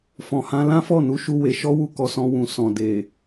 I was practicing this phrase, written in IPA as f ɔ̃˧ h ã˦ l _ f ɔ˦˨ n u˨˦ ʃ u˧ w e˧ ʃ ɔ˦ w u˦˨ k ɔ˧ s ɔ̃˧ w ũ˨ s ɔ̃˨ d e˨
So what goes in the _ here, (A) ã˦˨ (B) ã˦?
B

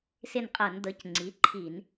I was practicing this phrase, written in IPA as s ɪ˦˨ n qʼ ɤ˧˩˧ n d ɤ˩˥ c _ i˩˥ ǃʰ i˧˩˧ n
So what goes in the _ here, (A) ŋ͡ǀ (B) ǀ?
A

